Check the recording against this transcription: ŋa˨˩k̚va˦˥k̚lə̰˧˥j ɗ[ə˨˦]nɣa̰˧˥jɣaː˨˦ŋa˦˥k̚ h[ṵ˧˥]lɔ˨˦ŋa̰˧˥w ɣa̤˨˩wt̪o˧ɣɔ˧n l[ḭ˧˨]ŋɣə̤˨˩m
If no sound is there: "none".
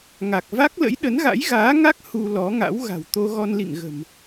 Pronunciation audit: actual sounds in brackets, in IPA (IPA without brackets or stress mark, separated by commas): ə˨˦, u˧, ḭ˧˨